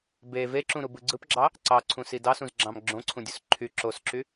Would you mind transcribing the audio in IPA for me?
b e v e ǁ ũ ɾ u b ɯ ɡ͡ǀ ɯ p ɡ͡ǁ ɑ | ǀ ɑ ǀʰ ũ s i d ɑ s ũ z ɡ͡ǁ ɑ̃ m ɡ͡ǁ õ ǀʰ ũ dʲ u s ǃʰ y ǁ o s ǁ y

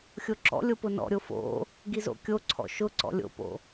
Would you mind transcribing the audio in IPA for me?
xʲ o ǁ ɔ̰ lʲ o p ʊ n ɔ̰ ɾʲ o f o̰ | ɡ i z o̰ kʲ o ǀʰ ɔ̰ ʃ ʊ ǀ ɔ̰ lʲ o̰ p o̰

